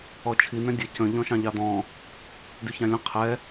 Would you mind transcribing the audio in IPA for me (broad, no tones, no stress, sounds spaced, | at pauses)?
ɔ t͡ʃʰ i n̪ ɛ̃ dʲ ʌ c ə̃ ʎ ɔ̃ ʃ ɑ̃ ʎ ɑ d̪ ɔ̃ | d y ç ɑ̃ lʲ ə̃ qʰ ɛ